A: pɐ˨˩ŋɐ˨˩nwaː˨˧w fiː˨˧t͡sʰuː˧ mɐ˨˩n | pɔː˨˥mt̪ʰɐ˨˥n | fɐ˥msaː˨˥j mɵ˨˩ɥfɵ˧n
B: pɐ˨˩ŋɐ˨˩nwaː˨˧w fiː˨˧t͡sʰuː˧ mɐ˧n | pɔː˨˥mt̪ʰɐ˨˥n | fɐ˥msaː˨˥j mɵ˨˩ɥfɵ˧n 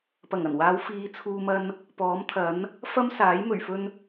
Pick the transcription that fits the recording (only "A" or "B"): B